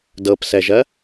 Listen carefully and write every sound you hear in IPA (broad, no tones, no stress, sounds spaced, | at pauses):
d ɤ p s ɛ ʒ ɜ